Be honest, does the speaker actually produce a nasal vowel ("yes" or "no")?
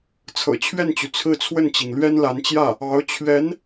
no